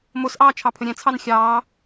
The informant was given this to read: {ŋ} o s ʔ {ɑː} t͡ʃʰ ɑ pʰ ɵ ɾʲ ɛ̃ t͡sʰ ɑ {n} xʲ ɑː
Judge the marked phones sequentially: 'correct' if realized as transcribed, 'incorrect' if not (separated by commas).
incorrect, correct, correct